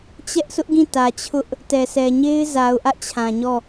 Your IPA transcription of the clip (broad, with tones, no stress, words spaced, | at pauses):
t͡ɕɛ˦ʔsʰʊ˦ʔɡĩ˦˨ tä˨t͡ɕʰʊ˦ʔ | tɛ˨sʰɛ˨ ɲe˦ɪ̯za˨ʊ̯ʔä˦ʔ t͡ɕʰã˨ɲɔ˦˨